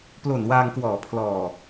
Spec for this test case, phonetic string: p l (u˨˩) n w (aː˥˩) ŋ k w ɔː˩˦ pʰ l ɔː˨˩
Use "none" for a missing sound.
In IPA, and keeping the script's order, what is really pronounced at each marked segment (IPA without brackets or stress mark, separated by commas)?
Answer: o˨˩, aː˧